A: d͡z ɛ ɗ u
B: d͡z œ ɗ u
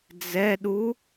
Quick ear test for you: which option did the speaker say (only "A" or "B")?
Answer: A